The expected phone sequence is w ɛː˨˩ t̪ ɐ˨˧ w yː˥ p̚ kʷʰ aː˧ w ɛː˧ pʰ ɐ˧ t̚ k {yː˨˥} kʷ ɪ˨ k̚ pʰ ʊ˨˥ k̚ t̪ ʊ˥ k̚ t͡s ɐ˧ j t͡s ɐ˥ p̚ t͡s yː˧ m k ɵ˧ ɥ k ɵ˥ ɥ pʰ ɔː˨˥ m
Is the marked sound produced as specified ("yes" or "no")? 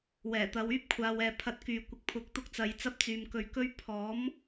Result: no